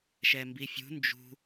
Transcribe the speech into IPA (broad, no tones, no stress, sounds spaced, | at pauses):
ʃ ɛ m b i fʲ ṳ n d͡ʒ ṳ